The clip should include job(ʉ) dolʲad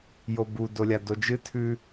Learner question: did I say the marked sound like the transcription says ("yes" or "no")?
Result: no